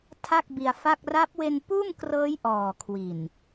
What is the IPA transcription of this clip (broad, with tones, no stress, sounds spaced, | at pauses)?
tʰ a˥˩ k̚ b i˧ a̯ f a˥˩ k̚ r a˦˥ p̚ w e˧ n p uː˥˩ m k r ɤː˦˥ j ʔ ɔː˨˩ kʰ w i˨˩ n